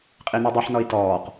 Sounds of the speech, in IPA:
qʼ i n i dˤ i ħ n ɔ i̯ t ɔː q

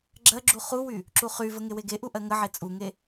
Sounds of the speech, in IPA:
ɡ͡ǁ ɜ ɡ͡ǁ u χ u w y | ǁ u χ y v ə ŋ e w e ɡ e ʔ u ʔ ɜ ŋ ə ʕ e t͡sʼ u ŋ e

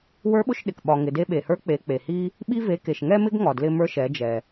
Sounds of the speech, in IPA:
w ə˞˧˥ ɓ ʊ˧ ʃ ɗ ɪ˩ k ɓ ɒ˩ ŋ ɪ˩ d e˧ ɓ e˩ h ə˞˧˥ k͡p e˩˧ k͡p e˩ h i˥ | ɓ i˧ v e˩˧ k e˩ ʃ ŋ ɛ˥ m ɪ˥ ɡ ŋ ɒ˩ d l ɪ˧ m ə˞˧ ʃ ɛ˩˧ d͡ʒ ɛ˩

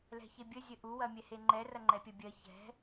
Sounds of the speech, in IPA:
l ɛ̤ ç e bʲ ə zʲ ə ʔ u w ɐ mʲ ɛ h e ŋ͡ǃ ɛ r ɐ ŋ͡ǃ ɛ pʲ ɐ bʲ ɜ ç ɛ̤

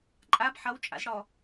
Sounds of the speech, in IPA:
ǃʼ a b ħ ʌ w t͡ʃʼ a̰ z ɽ ɔ

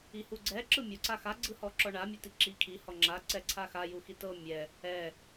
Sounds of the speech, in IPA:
i h u ɡ͡ǀ ɛ ǁ ɯ mʲ u ǀ a x a ɡ͡ǀ ɯ h ɔ ǁ ɔ ɳ a mʲ ɤ t i ǁ i kʰ i h ɔ ŋ͡ǁ a ǀ ɛ ǀʰ a x a j u x i t ɤ mʲ ɛ | ɛ

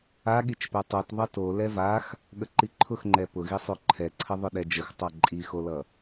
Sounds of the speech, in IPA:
a ɠ i t͡ʃ p ɛ tˤ o t ðˤ ʌ t o l ɛ v a x | ɠ ə ǃ i ǃʰ ʊ x ŋ͡ǃ ɛ p ʊ ɣ i sˤ o ǃʰ ɛ ǀʰ ə ðˤ ʊ ɗ ɛ d͡ʒ ə x tˤ a ǃʼ i x o l ʌ

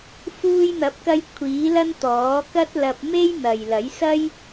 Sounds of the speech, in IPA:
f uː˧ j n̪ ɐ˨˥ p̚ k ɐ˧ j kʷʰ iː˨˥ l ɐ˥ n t̪ ɔː˨˥ k ɐ˥ t̚ l ɐ˧ p̚ m e˥ j n̪ ɐ˨ j l ɐ˨˥ j s ɐ˥ j

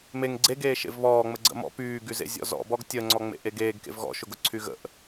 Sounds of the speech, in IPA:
m e ŋ ɡ͡ǀ e ɡ eː ʃ ḛ v β ɔː ŋ͡m ə ɡ͡ǀ ə̰ m ɔ̰ p yː ɡ y z ḛ zʲ ɔ̰ z ɔ̰ b ɔ ɡ tʲ ə ŋ͡ǀ ɔ ŋ͡m ḛ ʔ e ɡ eː ɡ k ḛ v ɣ ɔ̰ ʃ ʊ ɡ ʊ ǀʰ y ɣ ə̰ ʔ

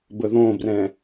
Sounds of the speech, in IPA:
b ə ð õ b r ɛ̃

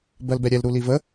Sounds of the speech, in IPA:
b ɜ l b ɛ ɾʲ ɛ l ɾ u l i v ə

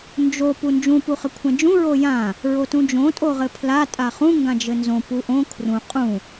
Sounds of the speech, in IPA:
n d͡ʒ o p u n d͡ʒ ũ p u χ ɘ kʷʰ ɛ̃ d͡ʒ ũ ɹ o j ã | ɹ o t ũ d͡ʒ õ tʼ o ʁ ɘ pʰ l a tʼ a χ ũ ŋ ɡ ã d͡ʒ ɘ n z õ p u ʔ õ kʰ r ũ qʼ ũ

